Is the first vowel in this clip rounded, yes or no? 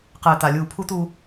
no